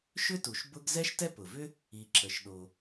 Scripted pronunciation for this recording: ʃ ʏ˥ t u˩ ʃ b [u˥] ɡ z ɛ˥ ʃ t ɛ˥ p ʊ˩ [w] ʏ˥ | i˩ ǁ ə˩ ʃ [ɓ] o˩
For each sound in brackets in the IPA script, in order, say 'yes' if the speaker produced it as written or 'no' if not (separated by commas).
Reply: no, no, no